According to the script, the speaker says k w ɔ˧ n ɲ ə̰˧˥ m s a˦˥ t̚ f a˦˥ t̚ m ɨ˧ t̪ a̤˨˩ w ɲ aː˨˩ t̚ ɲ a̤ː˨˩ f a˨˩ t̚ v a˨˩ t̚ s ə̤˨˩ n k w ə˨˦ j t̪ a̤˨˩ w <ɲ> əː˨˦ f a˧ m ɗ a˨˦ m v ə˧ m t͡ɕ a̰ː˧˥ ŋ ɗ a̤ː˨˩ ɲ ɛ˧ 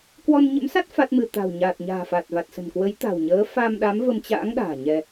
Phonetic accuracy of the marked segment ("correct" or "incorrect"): correct